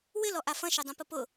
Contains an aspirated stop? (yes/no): no